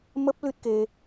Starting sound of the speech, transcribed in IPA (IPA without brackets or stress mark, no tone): m